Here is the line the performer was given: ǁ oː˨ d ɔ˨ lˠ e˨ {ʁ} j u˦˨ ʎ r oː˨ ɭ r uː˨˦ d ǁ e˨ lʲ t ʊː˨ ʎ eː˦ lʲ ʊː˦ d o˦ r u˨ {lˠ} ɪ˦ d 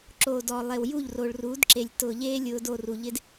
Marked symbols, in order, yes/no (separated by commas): no, no